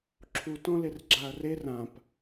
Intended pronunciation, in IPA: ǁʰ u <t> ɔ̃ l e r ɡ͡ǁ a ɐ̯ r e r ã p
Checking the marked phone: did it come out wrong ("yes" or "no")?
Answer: no